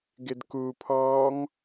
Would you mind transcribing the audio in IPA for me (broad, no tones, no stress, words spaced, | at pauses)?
ɡɪdkupʰɔːŋ